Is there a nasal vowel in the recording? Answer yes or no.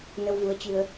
no